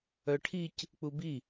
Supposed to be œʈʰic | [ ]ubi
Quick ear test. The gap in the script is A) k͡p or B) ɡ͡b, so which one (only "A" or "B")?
A